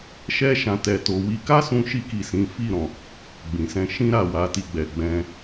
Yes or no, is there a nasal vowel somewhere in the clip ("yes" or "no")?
yes